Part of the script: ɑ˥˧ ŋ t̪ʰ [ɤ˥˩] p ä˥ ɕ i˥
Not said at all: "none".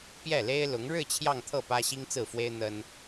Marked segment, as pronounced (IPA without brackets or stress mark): ɤ˥˩